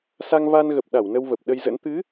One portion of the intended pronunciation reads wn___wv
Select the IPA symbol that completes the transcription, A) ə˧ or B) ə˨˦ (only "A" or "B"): A